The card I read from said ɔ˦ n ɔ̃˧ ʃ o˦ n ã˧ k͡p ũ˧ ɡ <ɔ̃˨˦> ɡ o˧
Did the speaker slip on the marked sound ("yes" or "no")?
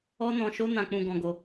yes